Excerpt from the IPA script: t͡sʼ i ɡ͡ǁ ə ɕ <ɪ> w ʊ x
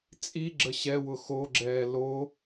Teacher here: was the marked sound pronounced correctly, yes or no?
no